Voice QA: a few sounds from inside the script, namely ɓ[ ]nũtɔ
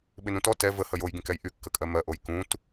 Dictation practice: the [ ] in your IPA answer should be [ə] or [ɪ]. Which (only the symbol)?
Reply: ɪ